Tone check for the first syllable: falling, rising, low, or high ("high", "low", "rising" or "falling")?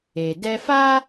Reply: low